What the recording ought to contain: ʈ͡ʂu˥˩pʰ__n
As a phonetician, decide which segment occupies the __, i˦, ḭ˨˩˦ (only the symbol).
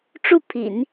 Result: ḭ˨˩˦